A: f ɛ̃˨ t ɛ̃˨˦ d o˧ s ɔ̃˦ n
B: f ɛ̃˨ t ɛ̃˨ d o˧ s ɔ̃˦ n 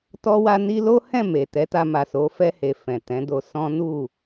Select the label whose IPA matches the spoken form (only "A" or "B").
A